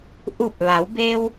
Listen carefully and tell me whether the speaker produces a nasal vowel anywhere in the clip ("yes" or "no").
no